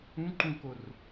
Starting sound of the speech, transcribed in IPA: ũ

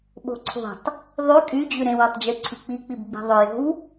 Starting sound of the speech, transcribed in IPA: ɓ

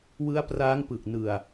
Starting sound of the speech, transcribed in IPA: w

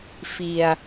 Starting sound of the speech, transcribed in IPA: f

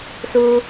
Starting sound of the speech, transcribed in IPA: s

